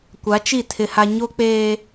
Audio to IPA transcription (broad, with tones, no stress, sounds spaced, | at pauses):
kʷ a˨˦ t͡ʃ i˦˨ tʰ ɪ˦ h a˦ ɲ o˦ k͡p eː˦